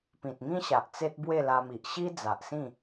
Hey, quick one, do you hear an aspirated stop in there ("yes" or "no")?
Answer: no